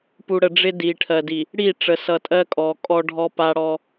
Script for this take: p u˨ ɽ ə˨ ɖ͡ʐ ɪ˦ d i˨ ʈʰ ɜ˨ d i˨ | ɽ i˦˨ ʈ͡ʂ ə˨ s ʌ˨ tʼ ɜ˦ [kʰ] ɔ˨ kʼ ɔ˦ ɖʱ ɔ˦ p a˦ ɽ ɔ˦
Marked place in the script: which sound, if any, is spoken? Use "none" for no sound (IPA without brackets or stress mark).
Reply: kʼ